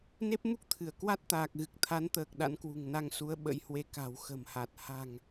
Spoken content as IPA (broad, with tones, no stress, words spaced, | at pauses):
ne˦˥p̚mu˦˥k̚t̪ʰɨ˧˩ə̯ kwa˦˥t̚t̪aː˨˩k̚ɣɨ˨˩k̚ t̪ʰa˨˦nt̪əː˨˩k̚ ɗa̰˧˥nkwṳ˨˩ŋna˧ŋsu˨˦ə̯ ɓə̰˧˥jhwe˧ ka̤˨˩wxə̤˨˩mha˨˩t̚ ha̤˨˩ŋ